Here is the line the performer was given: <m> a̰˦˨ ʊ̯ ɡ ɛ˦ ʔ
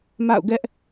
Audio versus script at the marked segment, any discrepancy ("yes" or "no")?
no